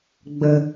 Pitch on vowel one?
low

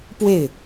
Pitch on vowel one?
falling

